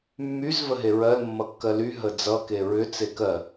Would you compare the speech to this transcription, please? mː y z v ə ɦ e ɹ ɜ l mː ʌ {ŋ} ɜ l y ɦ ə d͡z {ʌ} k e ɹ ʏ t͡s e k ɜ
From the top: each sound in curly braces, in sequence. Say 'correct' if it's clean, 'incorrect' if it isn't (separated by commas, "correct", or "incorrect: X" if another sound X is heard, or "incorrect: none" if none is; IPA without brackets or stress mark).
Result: incorrect: kː, correct